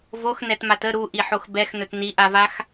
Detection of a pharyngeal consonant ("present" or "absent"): present